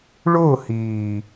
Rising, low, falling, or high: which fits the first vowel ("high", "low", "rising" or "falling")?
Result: falling